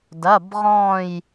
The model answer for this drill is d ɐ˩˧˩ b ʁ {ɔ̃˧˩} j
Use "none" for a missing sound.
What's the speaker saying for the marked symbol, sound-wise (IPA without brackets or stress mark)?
ɔ̃˧˩